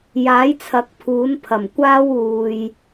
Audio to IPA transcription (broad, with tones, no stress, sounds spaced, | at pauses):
j aː˨˥ j t͡sʰ ɐ˨˥ k̚ pʰ uː˨˥ n pʰ ɐ˨˩ m kʷ aː˥ w uː˨ j